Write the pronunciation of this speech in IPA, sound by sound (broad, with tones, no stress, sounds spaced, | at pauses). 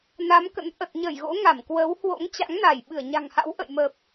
n a˨˦ m k ə̰˧˥ n ʔ ə˨˩ t̚ ɲ ə˧˩ j ɣ o̰˧˥ ŋ a˧˩ m k w ə˨˦ w h w o̰˧˥ ŋ t͡ɕ a̰˧˥ ŋ n a˧˩ j ɓ ɨ˧˩ ə̯ ɲ a̤˨˩ ŋ h a̰˧˥ w ʔ ə̰˧˨ j m ə˨˩ p̚